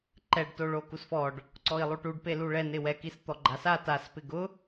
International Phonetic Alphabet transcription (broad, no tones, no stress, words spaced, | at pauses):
ǃɛɖto ɭokusfɔɖ | ǀɔi̯lˠuʈuɖ peluɭɛn ɪwɛkist̪ɔ ɡ͡ǃasa taspɪ ɡʊ